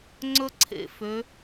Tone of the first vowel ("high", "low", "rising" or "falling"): high